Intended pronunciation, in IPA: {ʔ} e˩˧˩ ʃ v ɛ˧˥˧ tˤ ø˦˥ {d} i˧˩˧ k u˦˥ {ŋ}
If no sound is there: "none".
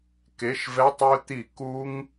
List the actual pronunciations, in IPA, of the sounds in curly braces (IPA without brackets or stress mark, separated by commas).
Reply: k, t̪, ŋ